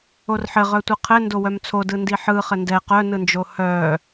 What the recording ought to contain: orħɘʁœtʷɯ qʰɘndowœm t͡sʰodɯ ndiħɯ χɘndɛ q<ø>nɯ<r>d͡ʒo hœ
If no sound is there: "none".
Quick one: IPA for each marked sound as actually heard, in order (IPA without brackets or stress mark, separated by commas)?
œ, n